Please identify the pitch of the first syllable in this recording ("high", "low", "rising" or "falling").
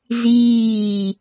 falling